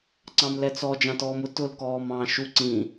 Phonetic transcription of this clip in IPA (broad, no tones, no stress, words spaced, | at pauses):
ǀɑ̃mlɛt͡sɔ d͡ʒɑ̃tɔːmʊ tʊl kɔːmɑ̃ːʃu ǀĩ